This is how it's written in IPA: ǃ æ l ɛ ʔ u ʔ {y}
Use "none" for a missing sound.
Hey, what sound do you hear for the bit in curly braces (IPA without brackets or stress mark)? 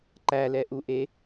e